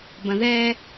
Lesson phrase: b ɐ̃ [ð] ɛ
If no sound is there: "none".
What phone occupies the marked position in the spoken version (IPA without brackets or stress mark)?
ð